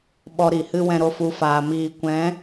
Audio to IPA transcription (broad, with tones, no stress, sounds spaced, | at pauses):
ɓ ɔ˧ ɾ i˨ h ɨ˦ w ɛ̃˧ ɾ o˧ f u˨˦ f aː˨ m iː˨ kʷ ɛ̃˨˦